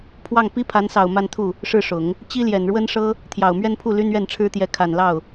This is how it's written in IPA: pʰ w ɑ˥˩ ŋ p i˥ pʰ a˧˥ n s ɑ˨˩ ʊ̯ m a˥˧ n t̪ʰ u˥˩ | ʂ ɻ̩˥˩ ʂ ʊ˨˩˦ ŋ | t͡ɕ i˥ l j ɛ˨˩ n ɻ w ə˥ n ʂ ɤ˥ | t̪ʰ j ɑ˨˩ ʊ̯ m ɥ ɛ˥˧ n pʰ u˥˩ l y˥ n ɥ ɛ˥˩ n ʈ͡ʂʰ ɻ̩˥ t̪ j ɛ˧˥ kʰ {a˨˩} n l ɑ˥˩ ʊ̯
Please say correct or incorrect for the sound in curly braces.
correct